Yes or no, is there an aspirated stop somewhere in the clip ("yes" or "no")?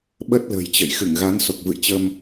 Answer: no